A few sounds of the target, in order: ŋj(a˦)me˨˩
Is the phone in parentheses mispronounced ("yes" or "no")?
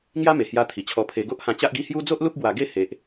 no